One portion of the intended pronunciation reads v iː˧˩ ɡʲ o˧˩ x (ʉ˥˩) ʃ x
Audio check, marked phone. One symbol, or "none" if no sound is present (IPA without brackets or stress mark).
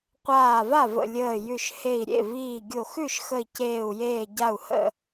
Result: ʉ˥˩